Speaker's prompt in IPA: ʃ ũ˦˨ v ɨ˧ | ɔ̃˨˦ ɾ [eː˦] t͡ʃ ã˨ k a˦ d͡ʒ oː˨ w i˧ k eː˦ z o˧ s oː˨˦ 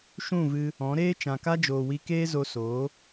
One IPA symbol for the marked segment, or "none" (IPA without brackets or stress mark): eː˦